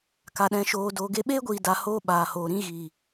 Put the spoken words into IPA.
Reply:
k a˨ ɗ ɛ̃˨ ʃ oː˨ d oː˨ ɡ e˧ ɓ eː˦ ɡʷ iː˨ d a˧ h oː˦ ɓ aː˨ h oː˨ ɾ ĩ˦ ɣ iː˨

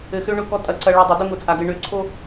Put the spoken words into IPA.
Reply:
ɘ˨ x ø˦ ɳ ʊ˦˨ k ɔ˦ tʼ ɐ˨ ǀ ɐ˨ ɭ ʊ˨ dˤ ɘ˨ d ʊ˦ ŋ ʊ˨ t͡sʼ a˨ ɡ ɘ˨ ɳ ø˨ ǀʰ o˦

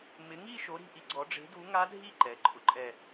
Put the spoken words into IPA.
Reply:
m ɪ˨˥ ŋ i˥˧ ʃ o˨˥ ɾ i̤˩˧˩ ʔ i˦˥ ɡ͡ǀ ɔ˨˥ ɖ͡ʐ e̤˨˥ d u˨˥ ŋ a˦˥ dʱ i˥˧ ǃ ɛ˩˧˩ ǃʼ ʊ˦˥ ǃʼ ɛ˥˧

